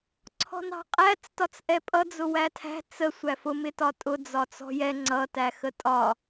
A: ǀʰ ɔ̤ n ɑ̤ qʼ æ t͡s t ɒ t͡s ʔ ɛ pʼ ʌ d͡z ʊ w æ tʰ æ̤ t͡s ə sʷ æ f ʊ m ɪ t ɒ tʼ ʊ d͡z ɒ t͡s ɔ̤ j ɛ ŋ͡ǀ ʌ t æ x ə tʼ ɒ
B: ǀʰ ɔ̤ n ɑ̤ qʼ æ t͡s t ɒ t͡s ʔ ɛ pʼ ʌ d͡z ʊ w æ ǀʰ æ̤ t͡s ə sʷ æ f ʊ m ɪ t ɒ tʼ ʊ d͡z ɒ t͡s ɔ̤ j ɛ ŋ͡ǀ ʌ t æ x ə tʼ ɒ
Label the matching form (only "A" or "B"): A